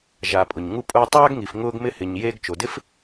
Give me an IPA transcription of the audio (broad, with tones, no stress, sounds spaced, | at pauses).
ʒ a˩ pʼ ʊ˩ ɲ ŋ u˧ pʼ ʊː˧ tˤ aː˥ ɡ ŋ i˩ f ŋ ʊː˧ ɡ m ɪ˧ h ɪ˩ ɲ j eː˧ ɡ t͡ʃ o˩ d ɪ˥ f